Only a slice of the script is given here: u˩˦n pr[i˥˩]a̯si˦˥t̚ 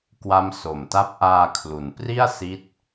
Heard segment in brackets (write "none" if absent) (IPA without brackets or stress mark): i˥˩